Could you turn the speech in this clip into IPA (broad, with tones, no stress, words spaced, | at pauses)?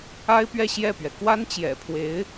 a˥ɪ̯pɥɛ˥˧ ɕjɛ˥˩pɥɛ˩ kwa˥nt͡ɕjɛ̰˨˩pʰwe˧˥ɪ̯